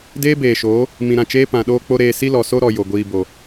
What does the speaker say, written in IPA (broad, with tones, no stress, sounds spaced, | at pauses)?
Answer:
d eː˦ b eː˨ ʃ oː˨˦ | m ĩ˨ ɾ ã˦˨ t͡ʃ eː˦ p ã˨ ɗ oː˦ k͡p o˦ ɾ eː˧ s i˦ l ɔ˨ s o˦ ɾ ɔ˧ j o˨ ɡʷ iː˧ b o˨